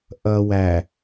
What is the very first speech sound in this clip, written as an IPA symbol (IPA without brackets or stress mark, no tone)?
ʔ